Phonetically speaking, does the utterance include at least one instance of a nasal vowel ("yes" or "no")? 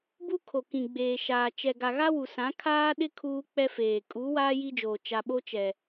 yes